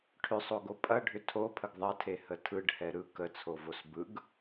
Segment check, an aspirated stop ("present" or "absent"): present